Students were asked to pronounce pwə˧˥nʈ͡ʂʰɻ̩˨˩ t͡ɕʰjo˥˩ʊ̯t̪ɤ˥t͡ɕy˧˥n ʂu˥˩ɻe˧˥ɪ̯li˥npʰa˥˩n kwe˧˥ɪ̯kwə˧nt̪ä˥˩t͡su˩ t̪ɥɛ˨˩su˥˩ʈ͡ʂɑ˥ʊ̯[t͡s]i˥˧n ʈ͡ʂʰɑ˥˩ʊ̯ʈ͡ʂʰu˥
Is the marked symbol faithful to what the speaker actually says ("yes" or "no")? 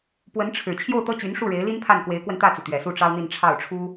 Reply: no